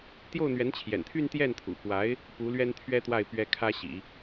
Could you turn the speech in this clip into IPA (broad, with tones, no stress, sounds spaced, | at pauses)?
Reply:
t̪ j o˥˩ ʊ̯ n̪ ɥ ɛ˧˥ n t͡ɕʰ j ɛ̰˨˩ n t̪ʰ y˥˧ n t̪ j ɛ˥˩ n t̪ʰ ṵ˨˩ p w a˧˥ ɪ̯ | p u˧˥ l ɥ ɛ˥ n t̪ʰ ɥ ɛ˥ t̪ w a˥˩ ɪ̯ p ɥ ɛ˥ kʰ ä˥ ɕ ḭ˨˩˦